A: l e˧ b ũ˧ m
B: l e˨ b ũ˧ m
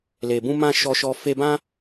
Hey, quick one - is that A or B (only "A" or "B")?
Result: B